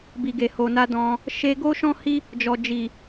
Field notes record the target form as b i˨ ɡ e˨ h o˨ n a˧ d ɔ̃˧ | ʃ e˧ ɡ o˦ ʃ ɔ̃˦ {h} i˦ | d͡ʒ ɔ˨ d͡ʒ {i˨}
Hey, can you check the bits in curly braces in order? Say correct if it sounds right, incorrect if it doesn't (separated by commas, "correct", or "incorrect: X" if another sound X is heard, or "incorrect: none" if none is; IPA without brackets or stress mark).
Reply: correct, correct